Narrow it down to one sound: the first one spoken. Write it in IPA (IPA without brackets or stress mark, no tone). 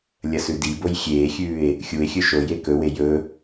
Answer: lʲ